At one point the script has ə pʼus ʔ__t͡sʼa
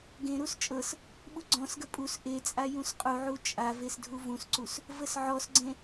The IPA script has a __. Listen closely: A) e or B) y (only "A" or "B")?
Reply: A